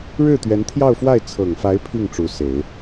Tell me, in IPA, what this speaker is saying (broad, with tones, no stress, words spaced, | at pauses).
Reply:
ɻɻ̩˥˩t̪ɥɛ˧˥nt̪ʰjɑ˥˧ʊ̯fwa˥˩ɪ̯ t͡sʰɤ˨˩ŋfa˧˥ɪ̯ pʰi˥˩ŋ ʈ͡ʂu˧˥se˨˩˦ɪ̯